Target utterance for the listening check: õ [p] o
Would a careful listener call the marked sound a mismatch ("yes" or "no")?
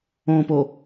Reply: no